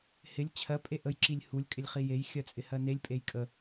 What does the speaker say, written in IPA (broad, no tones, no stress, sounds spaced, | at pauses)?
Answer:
h ɪ lʲ t͡ɕʰ ɜ pʼ e ʔ ə j ǁ i lʲ h u lʲ kʼ ɪ lʲ χ i j e j xʲ ɜ t͡sʼ ɪ h ɜ n e lʲ pʼ e j kʼ ə